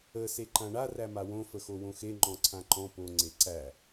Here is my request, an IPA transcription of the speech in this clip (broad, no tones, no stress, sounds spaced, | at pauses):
ə s e ǃ ã ɳ a r æ m a w õ f ə x o w õ x e ŋ͡ǃ ɔ̃ ǀʰ ã ǃ ɔ̃ p o ŋ͡ǀ e ǀ æ